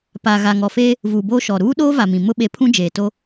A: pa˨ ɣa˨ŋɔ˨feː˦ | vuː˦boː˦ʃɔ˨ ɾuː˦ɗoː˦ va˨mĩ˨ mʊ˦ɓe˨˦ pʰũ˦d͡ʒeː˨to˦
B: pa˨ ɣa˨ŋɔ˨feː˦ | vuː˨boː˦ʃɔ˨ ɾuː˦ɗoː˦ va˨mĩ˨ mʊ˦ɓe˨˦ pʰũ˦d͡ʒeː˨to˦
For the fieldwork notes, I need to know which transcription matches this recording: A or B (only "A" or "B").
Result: B